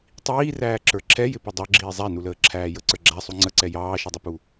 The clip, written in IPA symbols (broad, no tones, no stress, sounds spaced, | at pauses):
tˤ iː r æː ǁ ə˞ ǁʰ ɛ j ɪ p ə dˤ ə˞ ɡ͡ǁ iː zˤ æ n u l əː ǁʰ æː j ə ǀ ə˞ ɡ͡ǁ æ sˤ u ŋ͡ǀ ə ǀ ɛ j ɑː ʃ i dˤ ʊ p u